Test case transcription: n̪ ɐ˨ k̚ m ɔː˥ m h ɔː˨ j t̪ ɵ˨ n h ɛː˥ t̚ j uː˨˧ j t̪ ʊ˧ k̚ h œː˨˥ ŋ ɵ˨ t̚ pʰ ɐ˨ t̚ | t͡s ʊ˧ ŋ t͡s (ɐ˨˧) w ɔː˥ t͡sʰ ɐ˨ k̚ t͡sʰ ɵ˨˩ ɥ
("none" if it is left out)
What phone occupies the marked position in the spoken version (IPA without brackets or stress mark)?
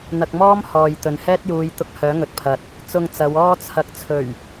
ɐ˨˧